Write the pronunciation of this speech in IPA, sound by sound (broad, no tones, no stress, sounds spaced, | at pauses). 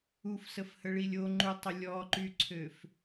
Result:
u f s ə f h ə ɭ i lʲ o ŋ͡ǃ u tˤ ə lʲ ɔ ǃ y ǀʰ ø f